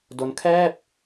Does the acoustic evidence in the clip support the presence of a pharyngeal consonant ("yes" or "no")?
no